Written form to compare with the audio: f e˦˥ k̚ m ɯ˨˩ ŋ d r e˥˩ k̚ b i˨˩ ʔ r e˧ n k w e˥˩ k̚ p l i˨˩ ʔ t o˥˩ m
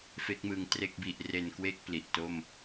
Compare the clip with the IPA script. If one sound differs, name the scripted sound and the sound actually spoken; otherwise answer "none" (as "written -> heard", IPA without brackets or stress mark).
d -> t